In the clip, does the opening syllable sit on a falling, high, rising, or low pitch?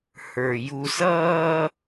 low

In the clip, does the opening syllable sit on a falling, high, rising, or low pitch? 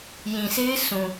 low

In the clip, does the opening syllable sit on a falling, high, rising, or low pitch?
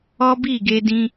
high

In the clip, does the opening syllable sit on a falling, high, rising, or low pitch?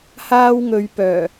high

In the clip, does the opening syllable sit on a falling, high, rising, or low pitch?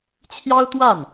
high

